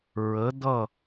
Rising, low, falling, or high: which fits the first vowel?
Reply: rising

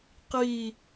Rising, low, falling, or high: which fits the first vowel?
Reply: falling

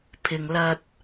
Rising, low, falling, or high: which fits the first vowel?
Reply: low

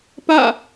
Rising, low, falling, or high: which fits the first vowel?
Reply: falling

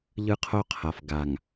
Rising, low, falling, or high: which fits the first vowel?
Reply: high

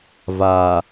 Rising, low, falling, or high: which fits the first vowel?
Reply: low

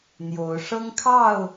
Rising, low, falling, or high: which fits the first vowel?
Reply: rising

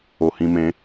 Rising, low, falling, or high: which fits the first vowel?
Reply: low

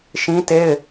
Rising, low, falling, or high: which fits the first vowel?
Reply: high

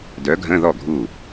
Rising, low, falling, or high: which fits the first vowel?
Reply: rising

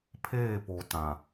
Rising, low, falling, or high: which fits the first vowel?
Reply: falling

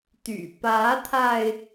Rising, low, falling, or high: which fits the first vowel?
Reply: low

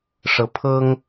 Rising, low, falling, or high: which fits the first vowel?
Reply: rising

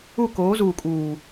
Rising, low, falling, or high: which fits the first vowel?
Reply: falling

